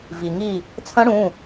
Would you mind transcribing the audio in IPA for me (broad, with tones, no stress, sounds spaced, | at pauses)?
v i˩ ŋ i˧˩ | t͡sʰ ɐ̃˦˥ ɽ ũ˩˧˩